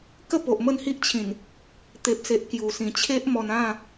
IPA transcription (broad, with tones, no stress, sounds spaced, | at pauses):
k ə˥˧ p o˨ ʔ m ə˥˧ n h i˦ ʔ t͡ɕʰ ĩ˨˩ n | t̪ e˨ p̚ s e˨ ʔ k j u˨˩ s ĩ˨˩ t͡ɕʰ e˦ ʔ m ɔ˧ n ã˥˧